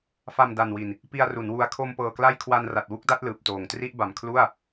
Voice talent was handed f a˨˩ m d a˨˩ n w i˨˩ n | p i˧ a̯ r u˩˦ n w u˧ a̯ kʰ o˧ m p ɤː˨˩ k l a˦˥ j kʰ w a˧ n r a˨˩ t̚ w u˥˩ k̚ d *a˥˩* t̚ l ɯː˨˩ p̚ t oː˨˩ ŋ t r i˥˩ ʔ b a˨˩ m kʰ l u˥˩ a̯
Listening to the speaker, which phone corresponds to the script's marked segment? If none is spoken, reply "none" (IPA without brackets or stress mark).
a˥˩